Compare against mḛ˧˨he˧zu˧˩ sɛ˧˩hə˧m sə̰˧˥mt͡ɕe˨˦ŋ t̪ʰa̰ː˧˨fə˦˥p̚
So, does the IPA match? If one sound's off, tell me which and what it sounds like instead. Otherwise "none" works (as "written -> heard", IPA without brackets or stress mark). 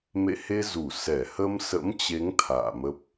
f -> m